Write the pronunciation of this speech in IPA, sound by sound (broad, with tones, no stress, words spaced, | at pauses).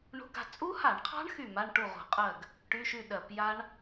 ɳṳ˧˥˧ɡa̤˥˩ t͡sʼu˦˥ha˧˩˧ɳqʰɑ̤˦˥ɳ xy˥˩ma˧˥˧ɳ ʈu˥˩ʁṳ˧˩˧qʼɜ˥˩ɡ | ʈy˧˥˧ʃy˥˩ ɗɜ˧˩˧pja˦˥ɳ